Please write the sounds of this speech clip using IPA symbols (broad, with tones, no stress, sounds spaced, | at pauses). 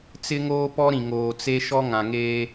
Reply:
t͡s ɪ˦ ŋ oː˦ p ɔ˦ ɾ ĩ˨ ŋ oː˨ t͡s e˦ ʃ ɔ˦ ŋ ã˨ ŋ eː˦